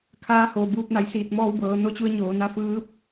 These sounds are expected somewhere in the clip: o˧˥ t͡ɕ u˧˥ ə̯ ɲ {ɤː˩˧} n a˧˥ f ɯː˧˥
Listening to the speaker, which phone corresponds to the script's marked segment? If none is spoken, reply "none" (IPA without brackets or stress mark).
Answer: oː˩˧